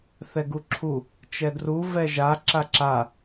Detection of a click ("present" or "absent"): present